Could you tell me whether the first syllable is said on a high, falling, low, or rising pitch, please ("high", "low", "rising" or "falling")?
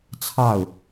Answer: falling